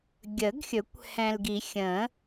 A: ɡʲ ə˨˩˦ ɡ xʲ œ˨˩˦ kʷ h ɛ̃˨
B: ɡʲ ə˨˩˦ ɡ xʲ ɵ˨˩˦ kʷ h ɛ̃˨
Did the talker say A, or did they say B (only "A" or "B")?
B